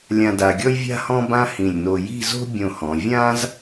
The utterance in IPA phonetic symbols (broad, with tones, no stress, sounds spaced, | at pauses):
lʲ ã˧ d a˧ ɡʲ ɔ˥ j vʲ a̤˥ h ɔ̃˥ b ã˥ h ĩ˧˩ lʲ n o˧ j i̤˥˧ z o̤˥ bʲ õ˧˩ h ɔ̃˩˧ vʲ ã˥ z